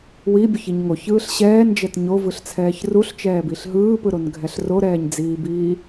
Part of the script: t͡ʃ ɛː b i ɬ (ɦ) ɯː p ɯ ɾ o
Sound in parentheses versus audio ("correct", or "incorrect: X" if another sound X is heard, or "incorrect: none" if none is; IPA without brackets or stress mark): correct